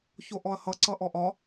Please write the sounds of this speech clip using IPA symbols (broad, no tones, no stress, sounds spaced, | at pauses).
ç o ʔ ɔ ɐ̯ h ʌ ǀ ʌ ʔ ɔ ʔ ɒ